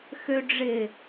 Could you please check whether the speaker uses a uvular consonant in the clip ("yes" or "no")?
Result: no